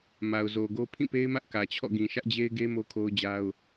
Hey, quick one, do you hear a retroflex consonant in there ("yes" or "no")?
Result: no